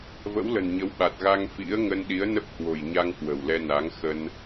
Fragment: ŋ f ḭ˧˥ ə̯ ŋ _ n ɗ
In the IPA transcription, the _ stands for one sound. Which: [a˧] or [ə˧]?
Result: ə˧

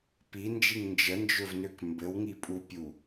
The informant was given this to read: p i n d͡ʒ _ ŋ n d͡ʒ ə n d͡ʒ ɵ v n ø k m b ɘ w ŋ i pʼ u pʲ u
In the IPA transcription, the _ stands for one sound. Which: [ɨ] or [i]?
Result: i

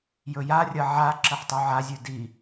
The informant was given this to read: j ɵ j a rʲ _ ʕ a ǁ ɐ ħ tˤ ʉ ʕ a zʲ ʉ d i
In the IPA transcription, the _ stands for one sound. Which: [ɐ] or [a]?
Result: ɐ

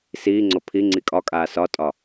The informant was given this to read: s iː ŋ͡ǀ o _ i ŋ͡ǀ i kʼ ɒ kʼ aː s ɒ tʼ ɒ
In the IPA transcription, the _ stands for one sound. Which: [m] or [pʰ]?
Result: pʰ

